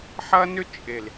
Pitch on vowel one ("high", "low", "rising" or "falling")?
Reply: high